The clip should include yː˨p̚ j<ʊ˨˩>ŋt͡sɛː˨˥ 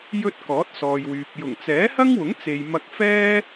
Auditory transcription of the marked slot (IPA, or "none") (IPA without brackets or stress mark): ʊ˨˩